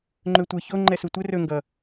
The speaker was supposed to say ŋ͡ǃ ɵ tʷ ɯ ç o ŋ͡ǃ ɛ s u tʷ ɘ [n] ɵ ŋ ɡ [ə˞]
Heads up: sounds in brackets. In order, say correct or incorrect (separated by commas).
incorrect, incorrect